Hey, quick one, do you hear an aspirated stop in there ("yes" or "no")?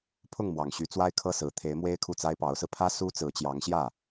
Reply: yes